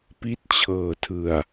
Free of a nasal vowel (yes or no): yes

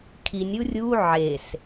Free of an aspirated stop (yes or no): no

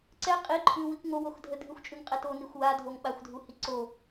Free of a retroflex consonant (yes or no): yes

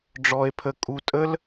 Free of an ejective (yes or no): no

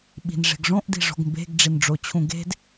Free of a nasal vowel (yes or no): no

